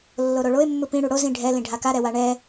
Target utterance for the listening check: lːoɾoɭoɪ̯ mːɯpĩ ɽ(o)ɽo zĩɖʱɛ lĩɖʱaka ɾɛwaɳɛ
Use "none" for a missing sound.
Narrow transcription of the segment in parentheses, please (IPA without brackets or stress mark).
u